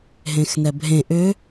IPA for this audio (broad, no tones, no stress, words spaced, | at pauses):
ɦẽxnɛbʱẽ ʔʏ